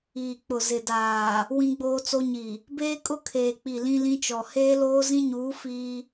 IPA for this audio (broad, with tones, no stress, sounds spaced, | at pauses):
iː˨ k͡p ʊ˨ z ɪ˨ d aː˨ | w ĩ˦ ɡ͡b oː˦ t͡s o˦ ɲ i˨ | b eː˦ kʼ ʊ˦ kʰ eː˨ k͡p i˨ l ĩ˦ l ĩ˦ t͡ʃ ɔ˨ h eː˦ l oː˦ z ĩ˦ ɲ uː˨˦ f iː˦